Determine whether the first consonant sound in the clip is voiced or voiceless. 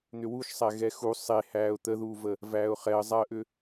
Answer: voiced